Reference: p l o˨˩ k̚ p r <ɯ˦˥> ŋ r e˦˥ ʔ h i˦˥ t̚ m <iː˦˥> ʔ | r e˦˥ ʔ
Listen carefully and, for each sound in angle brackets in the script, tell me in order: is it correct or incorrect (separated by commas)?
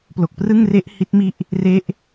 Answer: incorrect, incorrect